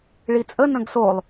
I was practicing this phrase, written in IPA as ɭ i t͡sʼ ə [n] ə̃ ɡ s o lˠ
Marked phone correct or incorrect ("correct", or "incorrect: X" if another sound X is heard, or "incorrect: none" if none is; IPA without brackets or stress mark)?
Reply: correct